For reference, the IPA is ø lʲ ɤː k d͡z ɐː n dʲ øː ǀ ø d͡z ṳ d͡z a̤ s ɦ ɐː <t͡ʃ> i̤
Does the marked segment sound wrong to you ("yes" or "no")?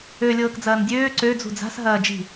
yes